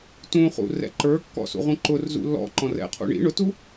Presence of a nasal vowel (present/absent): present